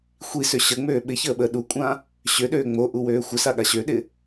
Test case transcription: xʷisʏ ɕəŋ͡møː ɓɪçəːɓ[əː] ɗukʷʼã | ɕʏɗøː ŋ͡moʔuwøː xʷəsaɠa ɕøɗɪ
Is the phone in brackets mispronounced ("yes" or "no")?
no